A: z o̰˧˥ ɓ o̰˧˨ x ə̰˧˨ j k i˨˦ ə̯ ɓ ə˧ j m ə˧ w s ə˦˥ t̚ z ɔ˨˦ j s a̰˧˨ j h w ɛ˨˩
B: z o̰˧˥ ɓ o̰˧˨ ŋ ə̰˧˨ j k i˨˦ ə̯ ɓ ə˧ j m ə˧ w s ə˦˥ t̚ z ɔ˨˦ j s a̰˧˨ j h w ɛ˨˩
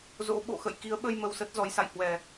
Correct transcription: A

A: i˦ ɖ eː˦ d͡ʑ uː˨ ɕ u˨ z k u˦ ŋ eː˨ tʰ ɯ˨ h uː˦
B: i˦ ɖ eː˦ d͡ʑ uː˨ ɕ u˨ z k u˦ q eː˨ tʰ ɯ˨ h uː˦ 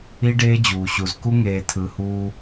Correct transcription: A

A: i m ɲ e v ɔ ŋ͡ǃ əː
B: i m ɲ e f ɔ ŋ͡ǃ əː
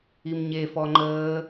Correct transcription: B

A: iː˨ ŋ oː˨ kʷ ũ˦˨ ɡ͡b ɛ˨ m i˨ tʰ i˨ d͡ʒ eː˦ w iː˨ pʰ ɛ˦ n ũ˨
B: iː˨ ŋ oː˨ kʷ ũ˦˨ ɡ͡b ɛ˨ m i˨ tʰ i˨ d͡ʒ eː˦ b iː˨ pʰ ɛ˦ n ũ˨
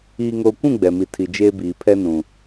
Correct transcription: B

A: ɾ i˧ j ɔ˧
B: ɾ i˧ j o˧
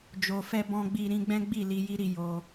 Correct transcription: B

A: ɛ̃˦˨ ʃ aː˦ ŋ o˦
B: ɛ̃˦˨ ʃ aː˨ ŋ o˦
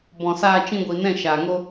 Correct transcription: B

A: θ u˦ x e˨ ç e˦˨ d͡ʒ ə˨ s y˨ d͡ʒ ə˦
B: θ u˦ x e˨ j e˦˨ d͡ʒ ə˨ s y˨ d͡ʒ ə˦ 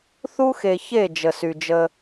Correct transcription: A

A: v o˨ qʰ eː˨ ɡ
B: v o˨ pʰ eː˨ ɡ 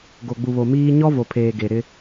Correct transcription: B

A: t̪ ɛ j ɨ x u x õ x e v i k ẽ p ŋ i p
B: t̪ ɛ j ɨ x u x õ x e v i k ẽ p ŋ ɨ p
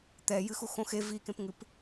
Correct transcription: B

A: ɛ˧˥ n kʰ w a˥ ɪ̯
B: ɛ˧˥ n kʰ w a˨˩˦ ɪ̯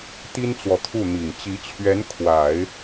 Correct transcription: B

